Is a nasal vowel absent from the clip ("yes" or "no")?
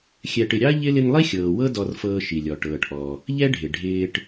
yes